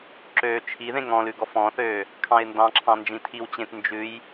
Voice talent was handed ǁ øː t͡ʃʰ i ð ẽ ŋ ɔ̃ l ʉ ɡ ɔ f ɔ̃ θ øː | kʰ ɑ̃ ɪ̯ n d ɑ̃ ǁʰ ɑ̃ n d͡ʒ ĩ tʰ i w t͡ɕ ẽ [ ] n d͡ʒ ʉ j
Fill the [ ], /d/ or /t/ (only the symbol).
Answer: t